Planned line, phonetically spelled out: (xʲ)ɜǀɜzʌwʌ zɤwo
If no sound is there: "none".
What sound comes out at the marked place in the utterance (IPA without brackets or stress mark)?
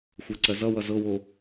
xʷ